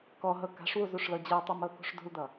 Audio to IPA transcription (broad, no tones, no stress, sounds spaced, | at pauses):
k ɔ ɦ ɤ k a̤ ʂ w u z u ʂ l ɤ d͡ʑ ɤ tˤ u m ɤ k ṳ ʂ d ṳ l d ʌ